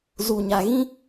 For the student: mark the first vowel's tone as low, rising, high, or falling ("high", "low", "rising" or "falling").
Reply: low